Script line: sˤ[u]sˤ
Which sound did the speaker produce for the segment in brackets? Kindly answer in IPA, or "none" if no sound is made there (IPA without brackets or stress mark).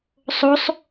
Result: o